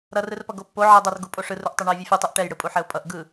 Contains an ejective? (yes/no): yes